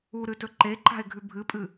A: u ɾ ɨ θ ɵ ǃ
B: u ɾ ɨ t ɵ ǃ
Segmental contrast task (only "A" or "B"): B